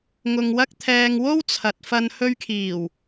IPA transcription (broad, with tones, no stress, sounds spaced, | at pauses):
ŋ ʊ˧ ŋ w ɐ˥ k̚ t̪ʰ ɛː˧ ŋ w o˥ w t͡sʰ ɐ˨ t̚ f ɐ˧ n h ɵ˧ ɥ kʰ iː˨˩ w